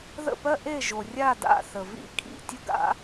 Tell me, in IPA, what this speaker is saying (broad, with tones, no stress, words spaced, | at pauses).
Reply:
ðə̰˥˨pɜ˥ʔe˥˨ʒo˩ rʲa˥˨da̰˥˨ θə˩vḭ˥˨ kʰḭ˥˨ tʲʊ˥ɡa̰˥